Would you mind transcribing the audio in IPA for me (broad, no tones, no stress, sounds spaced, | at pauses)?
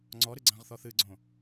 ŋ͡ǀ ɔ ɾ ɨ ɡ͡ǀ ã ʁ θ ɔ θ ɨ ɡ͡ǀ õ